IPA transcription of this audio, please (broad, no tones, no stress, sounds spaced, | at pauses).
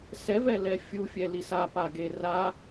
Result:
s ɛ v ɛ l ɛ fʲ u fʲ ɛ l i s a p a ɡ e r a